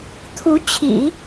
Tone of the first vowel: rising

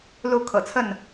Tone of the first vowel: falling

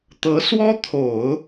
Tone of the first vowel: rising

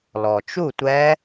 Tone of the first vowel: low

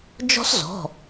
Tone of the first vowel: high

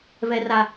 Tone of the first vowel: high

